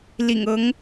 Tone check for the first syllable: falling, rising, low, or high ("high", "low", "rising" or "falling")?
low